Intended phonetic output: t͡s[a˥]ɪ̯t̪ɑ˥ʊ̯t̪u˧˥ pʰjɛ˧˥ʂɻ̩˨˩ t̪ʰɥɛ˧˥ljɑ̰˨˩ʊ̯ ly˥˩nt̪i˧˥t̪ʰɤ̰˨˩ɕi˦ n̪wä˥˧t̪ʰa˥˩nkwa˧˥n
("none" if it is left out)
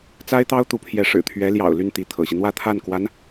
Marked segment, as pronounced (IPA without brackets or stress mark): a˥